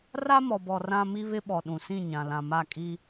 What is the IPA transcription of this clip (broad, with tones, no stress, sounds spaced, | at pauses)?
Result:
r a˦ m ɔ˨ b ɔ˨ r ã˦ m i˦ β ɪ˦ ɓ ɔ˨ ɗ ũ˨ s ĩ˦˨ ɲ ã˨ l ã˨ m a˦˨ kʼ i˦